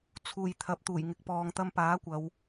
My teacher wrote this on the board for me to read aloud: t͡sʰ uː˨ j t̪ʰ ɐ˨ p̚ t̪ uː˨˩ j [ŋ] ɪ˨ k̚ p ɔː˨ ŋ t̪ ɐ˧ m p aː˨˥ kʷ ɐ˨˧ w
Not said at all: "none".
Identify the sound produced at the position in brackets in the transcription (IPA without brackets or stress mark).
ŋ